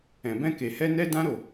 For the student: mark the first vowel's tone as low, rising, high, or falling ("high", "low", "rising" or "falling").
low